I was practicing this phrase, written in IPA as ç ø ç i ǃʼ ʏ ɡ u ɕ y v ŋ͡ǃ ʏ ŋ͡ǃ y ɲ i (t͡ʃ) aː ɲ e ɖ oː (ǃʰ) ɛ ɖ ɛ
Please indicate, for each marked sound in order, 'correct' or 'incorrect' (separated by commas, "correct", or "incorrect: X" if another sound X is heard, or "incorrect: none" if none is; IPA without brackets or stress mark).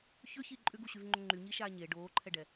incorrect: ʃ, correct